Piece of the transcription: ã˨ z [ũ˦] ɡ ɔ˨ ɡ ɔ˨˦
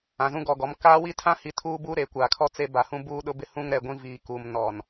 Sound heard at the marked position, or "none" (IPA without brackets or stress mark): ũ˦